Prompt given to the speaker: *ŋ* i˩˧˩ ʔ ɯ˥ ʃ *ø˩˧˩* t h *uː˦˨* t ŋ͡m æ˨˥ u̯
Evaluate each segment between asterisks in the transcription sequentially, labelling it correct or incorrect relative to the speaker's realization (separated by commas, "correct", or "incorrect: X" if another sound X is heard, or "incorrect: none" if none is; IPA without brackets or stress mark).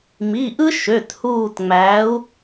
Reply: incorrect: m, correct, correct